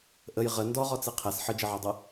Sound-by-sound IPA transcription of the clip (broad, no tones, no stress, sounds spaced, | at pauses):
ʔ ə j ʁ ə n d ɔ ʁ ɔ t͡s i qʰ ɛ s ħ ə d͡ʒ ə ʕ ɔ dˤ ɤ